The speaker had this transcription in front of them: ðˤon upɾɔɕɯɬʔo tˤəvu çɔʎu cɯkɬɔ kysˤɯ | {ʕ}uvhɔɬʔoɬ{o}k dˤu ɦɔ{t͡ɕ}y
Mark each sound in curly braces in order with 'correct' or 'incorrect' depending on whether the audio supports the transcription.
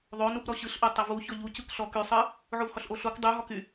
correct, correct, incorrect: k

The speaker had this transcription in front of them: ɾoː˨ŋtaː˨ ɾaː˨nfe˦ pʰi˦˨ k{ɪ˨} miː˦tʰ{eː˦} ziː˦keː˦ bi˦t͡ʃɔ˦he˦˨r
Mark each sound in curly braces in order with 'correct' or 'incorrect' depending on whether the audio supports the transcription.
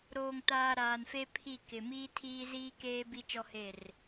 correct, incorrect: iː˦

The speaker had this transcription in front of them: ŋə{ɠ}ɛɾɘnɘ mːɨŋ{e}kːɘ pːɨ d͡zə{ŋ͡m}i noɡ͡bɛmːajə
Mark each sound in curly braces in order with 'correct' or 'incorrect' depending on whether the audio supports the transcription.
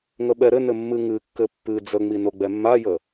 incorrect: ɓ, incorrect: ɨ, correct

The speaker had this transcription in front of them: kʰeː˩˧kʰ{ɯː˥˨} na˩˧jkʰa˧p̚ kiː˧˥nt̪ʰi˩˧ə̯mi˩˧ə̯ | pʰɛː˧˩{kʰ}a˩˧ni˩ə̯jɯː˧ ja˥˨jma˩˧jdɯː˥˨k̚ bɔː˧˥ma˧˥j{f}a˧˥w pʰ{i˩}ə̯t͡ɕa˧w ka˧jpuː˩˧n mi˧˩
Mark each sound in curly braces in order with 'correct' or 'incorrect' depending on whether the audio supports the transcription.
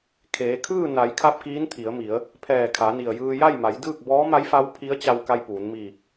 correct, correct, correct, incorrect: i˧˥

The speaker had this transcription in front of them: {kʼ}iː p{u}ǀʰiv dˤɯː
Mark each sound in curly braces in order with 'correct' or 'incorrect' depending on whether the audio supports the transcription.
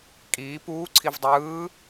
correct, incorrect: uː

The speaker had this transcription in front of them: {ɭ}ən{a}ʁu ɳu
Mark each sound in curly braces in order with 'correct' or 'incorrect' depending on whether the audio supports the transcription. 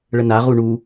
correct, correct

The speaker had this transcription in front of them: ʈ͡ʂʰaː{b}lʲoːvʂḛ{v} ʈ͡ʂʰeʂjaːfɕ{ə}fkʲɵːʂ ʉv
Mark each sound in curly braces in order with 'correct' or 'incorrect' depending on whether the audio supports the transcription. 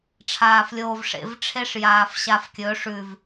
incorrect: f, correct, incorrect: a

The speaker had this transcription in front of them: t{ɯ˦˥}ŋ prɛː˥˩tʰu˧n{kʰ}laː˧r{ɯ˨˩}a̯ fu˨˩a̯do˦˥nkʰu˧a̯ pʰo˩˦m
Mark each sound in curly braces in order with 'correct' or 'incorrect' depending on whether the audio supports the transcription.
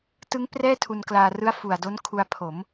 correct, incorrect: k, incorrect: ɯ˦˥

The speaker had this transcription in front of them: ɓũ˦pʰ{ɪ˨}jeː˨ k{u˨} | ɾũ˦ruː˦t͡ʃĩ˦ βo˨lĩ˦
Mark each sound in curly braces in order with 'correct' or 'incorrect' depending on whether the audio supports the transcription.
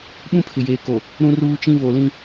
correct, incorrect: o˨

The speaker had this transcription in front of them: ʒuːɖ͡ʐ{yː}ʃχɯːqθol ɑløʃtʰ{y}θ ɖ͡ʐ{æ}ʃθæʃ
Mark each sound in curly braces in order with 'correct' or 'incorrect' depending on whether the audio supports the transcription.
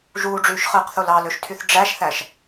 correct, correct, correct

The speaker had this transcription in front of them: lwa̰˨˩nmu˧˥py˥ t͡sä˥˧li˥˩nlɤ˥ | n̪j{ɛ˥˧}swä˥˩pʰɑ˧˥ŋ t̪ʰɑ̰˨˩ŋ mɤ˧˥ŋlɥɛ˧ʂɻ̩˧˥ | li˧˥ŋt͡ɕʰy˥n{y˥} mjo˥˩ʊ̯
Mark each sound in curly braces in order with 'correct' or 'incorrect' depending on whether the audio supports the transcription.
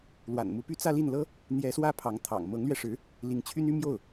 incorrect: ɛ˧˥, correct

